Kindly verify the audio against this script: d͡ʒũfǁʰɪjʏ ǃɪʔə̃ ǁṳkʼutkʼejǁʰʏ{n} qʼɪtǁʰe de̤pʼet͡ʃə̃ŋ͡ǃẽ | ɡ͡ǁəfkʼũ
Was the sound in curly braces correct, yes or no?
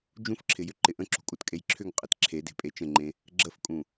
no